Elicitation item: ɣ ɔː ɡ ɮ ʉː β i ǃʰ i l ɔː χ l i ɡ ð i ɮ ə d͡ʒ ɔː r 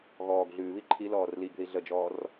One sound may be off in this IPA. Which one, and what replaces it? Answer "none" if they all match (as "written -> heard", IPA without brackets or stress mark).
χ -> r